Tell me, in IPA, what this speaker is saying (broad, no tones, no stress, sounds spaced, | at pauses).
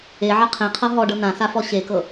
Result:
e ʕ ɐ qʰ ẽ qʰ ɤ ɦ ɔ ɖ ɤ n ã s a f ɔ ɕ e k ɤ